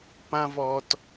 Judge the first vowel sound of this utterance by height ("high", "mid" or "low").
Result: low